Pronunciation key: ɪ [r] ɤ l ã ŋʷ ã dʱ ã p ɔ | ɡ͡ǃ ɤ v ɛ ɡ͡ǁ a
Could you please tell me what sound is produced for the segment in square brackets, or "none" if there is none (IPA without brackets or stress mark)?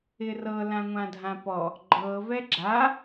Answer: r